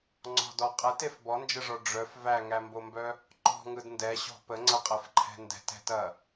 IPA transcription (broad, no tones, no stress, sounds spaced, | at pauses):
ŋ͡ǀ ɔ̤ d ɔ qʼ ɛ t e f b ɔ n d͡ʒ ə ʐ ɔ ɖ͡ʐ œ f v æ ŋ æ m b o m b œ | ǃ ɔ̤ ŋ ɯ d n d ɛ ɕ ɔ̤ p ə ŋ͡ǀ ɐ qʼ ɛ f ǃʰ ɛ̤ n d ɛ̤ t ɛ̤ t ɐ